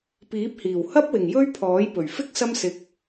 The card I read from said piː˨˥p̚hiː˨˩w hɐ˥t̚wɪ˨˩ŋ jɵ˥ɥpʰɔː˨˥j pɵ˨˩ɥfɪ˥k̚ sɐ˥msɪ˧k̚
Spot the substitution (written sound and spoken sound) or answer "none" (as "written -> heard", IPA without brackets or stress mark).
t̚ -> p̚